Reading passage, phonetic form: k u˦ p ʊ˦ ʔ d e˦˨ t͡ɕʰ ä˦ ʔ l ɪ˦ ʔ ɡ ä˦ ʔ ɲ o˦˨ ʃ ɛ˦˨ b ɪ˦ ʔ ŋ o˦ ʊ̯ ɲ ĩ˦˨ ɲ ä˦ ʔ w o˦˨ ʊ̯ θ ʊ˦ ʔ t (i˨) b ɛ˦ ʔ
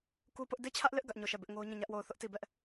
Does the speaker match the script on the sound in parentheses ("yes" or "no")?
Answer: no